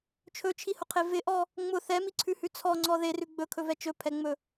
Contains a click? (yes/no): yes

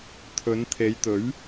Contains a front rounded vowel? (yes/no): no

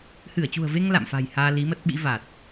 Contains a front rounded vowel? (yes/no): no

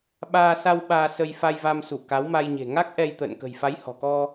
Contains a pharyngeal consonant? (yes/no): no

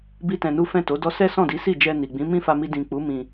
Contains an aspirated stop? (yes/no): no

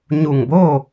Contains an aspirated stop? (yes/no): no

